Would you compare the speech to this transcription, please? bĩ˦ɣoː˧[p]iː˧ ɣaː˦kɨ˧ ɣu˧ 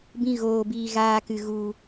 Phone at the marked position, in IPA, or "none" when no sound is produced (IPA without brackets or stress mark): b